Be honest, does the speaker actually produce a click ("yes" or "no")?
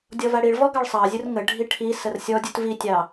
no